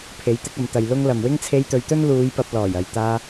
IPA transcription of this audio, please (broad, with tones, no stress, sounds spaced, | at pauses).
pʰ e˨˥ j t̪ ɪ˧ k̚ ɐ˨ m t̪ ɐ˨ j l ʊ˥ ŋ l ɐ˨ m w ɪ˥ ŋ t͡sʰ e˧ j t̪ ɵ˨˧ ɥ t̪ ɵ˥ n l uː˨˧ j p ɐ˧ p̚ l ɔː˨˩ j ɐ˨ j t̪ aː˧